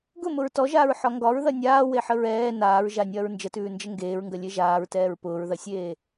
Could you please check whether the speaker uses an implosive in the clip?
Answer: no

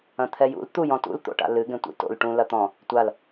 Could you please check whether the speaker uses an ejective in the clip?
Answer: no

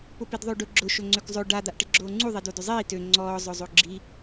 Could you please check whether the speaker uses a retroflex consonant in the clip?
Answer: yes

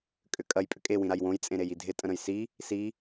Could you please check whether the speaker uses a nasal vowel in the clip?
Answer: yes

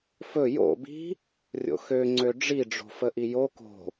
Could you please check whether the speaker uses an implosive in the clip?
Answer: no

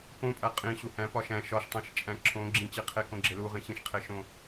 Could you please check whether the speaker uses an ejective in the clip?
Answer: yes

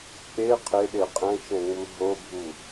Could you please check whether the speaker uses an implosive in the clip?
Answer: yes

